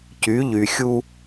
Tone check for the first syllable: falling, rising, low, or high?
rising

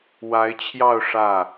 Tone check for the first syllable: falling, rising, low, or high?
rising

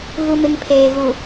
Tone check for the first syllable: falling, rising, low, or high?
low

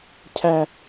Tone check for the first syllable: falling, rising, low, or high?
high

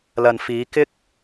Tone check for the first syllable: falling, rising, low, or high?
low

